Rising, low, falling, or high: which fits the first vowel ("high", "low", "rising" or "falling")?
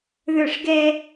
falling